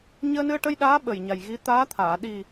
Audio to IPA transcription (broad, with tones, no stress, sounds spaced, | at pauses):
ɲ əː˧ n ɨ˧ ə̯ ʈ ə˧ j ɗ aː˧˥ ɓ ə˨˩ j ɲ a˨˩ j ɣ i˧˥ t̪ aː˧˥ t̪ʰ aː˨˩˨ ɗ i˨˩